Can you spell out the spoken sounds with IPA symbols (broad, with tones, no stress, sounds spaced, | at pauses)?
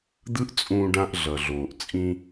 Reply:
d̪ ɯ˦ ʔ t͡sʼ ũː˧ ɖ ã˧ ʔ ɮ ʌ˨ ɮ oː˨ ʔ t͡sʼ ĩ˧